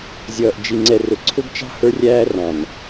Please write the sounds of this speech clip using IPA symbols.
zʲʌː˨ʔ d͡ʒi˨ŋ͡ǀɛ˨rʊ˨ ǀʰʊ˦ɡt͡ʃɑ̤˦ hə˞˦rʲæː˦rɑ̃˨n

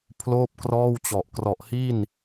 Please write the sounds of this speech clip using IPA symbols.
pʰloː˥˩p̚krɔː˥˩wt͡ɕɔ˨˩ʔ krɔ˨˩ʔhi˥˩n

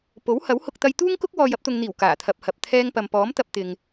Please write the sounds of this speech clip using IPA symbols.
po˨˥whɐ˨˥w hʊ˧k̚t̪ɐ˧jt̪uː˥ŋkʊ˥k̚ wɔː˨j ɐ˧p̚t̪ʊ˨ŋn̪iː˨˩w kaː˨˩ t̪ʰɐ˨p̚hɐ˨p̚ t̪ʰɛː˧ŋ pɐ˨mpɔː˨˥m t̪ɐ˧p̚t̪ɪ˨ŋ

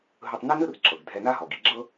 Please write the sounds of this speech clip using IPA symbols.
ɦɯ˧tˤne˥nɯ˥r ǁɤ˩ɡ dʱɛ˧na˥ɦɔ˩ɡ i˧ɡ͡ǁɤ˥

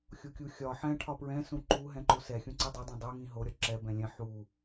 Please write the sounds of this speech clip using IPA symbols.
xʲokʲuxʲɒ ħɛ̃ ʈʰɒpɹɛ̃ sũǃu ɦɛ̃ǃosɛ xʲũǀidˤɛ dˤɛ̃dˤu ŋĩɦo ɾʲɒǁɛ bɛ̃lʲɛ̃ ħu

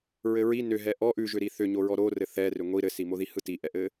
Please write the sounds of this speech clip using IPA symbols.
ɹɘɹi nʏɦɛ ʔɔ ʔʉʒʏ ɾiθʏɲoɹɔ ɾorɘ θɛ rʏŋʷi ɾɘsimoði hɯtiʔɛʔɘ

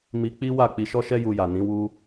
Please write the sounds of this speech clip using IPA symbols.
mi˧ k͡pi˦wa˦˨ k͡pi˧ʃɔ˦ʃɛ˦ ju˧ja˨nĩ˨˦ wu˦

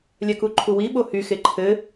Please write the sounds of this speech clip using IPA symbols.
lʲɛkuǃʰuwi ɓohyxe ǃʰɘ

